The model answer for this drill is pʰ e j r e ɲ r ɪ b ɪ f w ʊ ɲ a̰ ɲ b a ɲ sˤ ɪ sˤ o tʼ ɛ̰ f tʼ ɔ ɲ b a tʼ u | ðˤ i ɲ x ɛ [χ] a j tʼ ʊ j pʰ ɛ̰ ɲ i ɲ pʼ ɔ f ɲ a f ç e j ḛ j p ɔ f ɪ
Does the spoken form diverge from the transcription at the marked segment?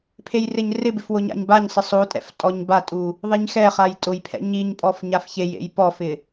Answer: no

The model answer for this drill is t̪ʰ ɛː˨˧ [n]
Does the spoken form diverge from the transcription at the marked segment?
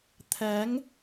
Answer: yes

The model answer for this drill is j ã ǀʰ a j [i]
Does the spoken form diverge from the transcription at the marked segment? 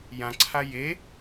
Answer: yes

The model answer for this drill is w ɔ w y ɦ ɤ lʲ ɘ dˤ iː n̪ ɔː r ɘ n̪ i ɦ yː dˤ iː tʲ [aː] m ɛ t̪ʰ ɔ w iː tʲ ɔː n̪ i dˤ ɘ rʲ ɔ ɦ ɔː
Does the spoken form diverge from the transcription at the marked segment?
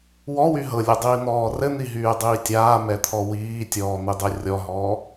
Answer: no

